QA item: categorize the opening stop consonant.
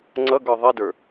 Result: click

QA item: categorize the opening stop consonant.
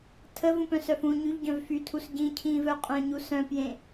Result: aspirated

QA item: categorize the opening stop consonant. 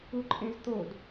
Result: click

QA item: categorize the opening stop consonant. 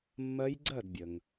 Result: click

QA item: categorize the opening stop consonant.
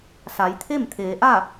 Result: aspirated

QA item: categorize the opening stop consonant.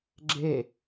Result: click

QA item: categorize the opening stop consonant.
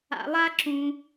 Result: click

